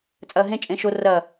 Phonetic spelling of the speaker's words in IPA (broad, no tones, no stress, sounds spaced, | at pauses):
t͡sʼ ɐː ɦ ẽ t͡ʃʼ ẽ ʃ o r ɐː